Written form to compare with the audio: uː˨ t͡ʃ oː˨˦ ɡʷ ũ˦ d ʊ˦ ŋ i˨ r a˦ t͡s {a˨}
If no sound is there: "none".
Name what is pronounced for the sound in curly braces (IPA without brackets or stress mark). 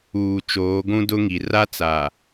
a˨